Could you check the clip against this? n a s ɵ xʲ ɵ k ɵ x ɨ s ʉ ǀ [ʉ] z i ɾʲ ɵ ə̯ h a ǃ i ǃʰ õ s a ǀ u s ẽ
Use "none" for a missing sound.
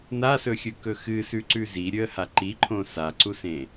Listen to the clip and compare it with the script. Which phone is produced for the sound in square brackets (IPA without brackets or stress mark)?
ʉ